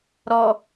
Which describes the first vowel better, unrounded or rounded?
rounded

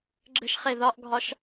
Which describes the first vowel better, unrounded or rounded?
unrounded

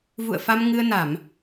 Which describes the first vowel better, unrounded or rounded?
rounded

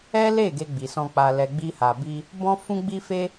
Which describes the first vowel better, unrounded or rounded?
unrounded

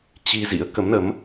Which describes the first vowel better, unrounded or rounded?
unrounded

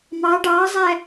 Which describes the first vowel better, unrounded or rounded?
unrounded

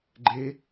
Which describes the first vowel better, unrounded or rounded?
unrounded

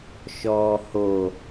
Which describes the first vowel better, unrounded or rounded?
rounded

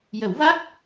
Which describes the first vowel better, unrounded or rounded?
unrounded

